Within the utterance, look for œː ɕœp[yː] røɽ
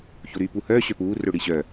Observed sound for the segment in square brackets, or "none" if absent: uː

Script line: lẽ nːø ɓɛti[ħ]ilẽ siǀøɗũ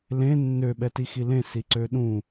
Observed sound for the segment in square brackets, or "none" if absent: x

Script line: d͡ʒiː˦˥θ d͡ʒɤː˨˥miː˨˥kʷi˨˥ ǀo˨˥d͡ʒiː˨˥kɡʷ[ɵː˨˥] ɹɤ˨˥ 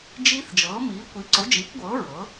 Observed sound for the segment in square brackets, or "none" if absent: ɤː˨˥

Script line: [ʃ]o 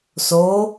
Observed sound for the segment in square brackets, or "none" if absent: s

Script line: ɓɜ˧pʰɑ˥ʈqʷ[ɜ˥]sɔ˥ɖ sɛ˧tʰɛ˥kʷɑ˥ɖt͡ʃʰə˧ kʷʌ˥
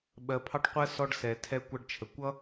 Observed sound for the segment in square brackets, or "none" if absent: ɜ˥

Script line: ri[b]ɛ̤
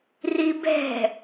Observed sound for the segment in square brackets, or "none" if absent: b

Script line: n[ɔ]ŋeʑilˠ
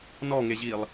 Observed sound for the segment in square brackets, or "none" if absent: ɔ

